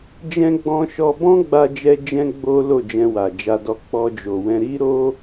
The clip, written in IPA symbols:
d͡ʒ ɛ̃˦ ɡ͡b ɔ̃˧ ʃ ɔ˧ b ɔ̃˦ ɡ͡b a˦ d͡ʒ ɛ˦ d͡ʒ ɛ̃˦ ɡ͡b o˦ l o˦˨ d͡ʒ ɛ̃˧ w a˨ d͡ʒ a˧ d ɔ˧ k͡p ɔ˧ d͡ʒ o˨ w ɛ̃˧ ɾ i˦ ɾ o˦

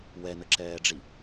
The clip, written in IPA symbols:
w ɛ n ə ǁ ɛː ɖ͡ʐ i

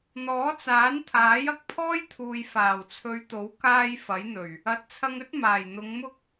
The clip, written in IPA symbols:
n̪ ɔː˨˥ t͡s aː˨˥ n t̪ʰ aː˨˥ j ɐ˨˥ k̚ pʰ ɔː˥ j t̪ʰ uː˨ j f aː˨˩ w t͡sʰ ɵ˨˧ ɥ t̪ o˨˥ w k aː˧ j f ɐ˨˥ j n̪ ɵ˨˩ ɥ | ɐ˨˥ t̚ t͡sʰ ɐ˧ ŋ ɵ˥ t̚ m aː˨˩ j n̪ ʊ˨˧ ŋ m ʊ˥ k̚

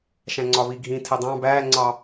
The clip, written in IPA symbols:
ʃ æ̃ ŋ͡ǀ ɒ β i ɡʱ ĩ tʰ ɛ dˤ ɑ̃ b æː ŋ͡ǀ ɑ

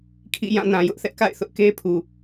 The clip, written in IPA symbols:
kʰ ḭ˦˨ j ã˦˨ n ã˨ j ʊ˦ ʔ θ ɛ˦ ʔ k a̰˦˨ ɪ̯ θ ʊ˦ ʔ k e˦ pʰ u˨

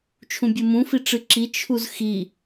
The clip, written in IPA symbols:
t͡ʃʰ ũ bʲ ɨ m ũ f i ʈ͡ʂ ɨ ǁ i t͡ʃʰ u z x i

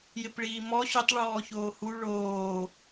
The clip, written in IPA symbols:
j ɪ p ɭ iː m ɔ ɕ ʊ tˤ ɭ ɔː ç oː h u ɭ oː

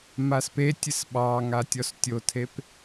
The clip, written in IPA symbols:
m a s p e tʲ ɨ s ɓ ɑ ŋ a tʲ ɔ s tʲ o tʰ e p

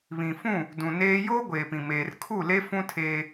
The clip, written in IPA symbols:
β ĩ˨ f ũ˦˨ | d ũ˨ n eː˦ j oː˦ ɡʷ eː˨ p ĩ˨ m eː˨ r kʰ u˦˨ l e˦ f ũ˦ tʰ eː˦

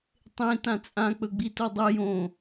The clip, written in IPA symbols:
tˤ ẽ t ã t͡sʼ ã k͡p ɵ ɡ͡b i t o dˤ ɵ j õ

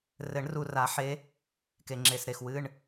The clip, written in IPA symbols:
r ɘ˨˩˦ ɳ r u˨˩ r a˨˩˦ ħ e˧˥ | k e˨˩ ŋ͡ǁ e˨˩ s ɾ e˨˩ x w ɨ˧˥˧ ɳ

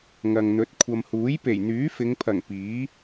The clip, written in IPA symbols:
ŋ ɐ˨ ŋ n̪ ɵ˨˥ t̚ kʷʰ ɐ˨ m h uː˨˥ j p e˨˩ j n̪ yː˨˥ f ɪ˨˧ ŋ pʰ ɐ˨˩ ŋ p iː˨˥

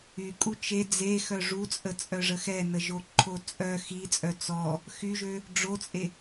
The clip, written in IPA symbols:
y kʼ u t͡ʃ e d͡z e x œ ʐ u t͡sʼ ə t͡sʼ œ ʐ ə x ɛ n ə ʒ o ǃʰ o t͡sʼ œ x i t͡sʼ œ t͡s ɔ | x y ʒ ø | ɖ͡ʐ o t͡sʼ e

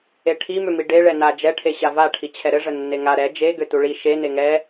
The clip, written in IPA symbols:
e ʈʰ i m ʏ m i ɖ e ɭ ɛ n a d͡ʒ ɛ ʈʰ e ɕ a v a ʈʰ i t͡ɕʰ ɛ ɾ ɘ ʐ ə nː e ŋ a ɾ ɛ d͡ʒ e ɡ ʏ t u ɭ i ʃ e n e ŋ ɛ

